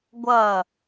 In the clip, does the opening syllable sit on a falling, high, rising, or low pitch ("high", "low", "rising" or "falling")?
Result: falling